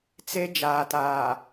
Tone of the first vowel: high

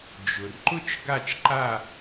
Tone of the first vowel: low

